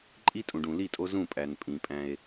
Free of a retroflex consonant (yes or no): no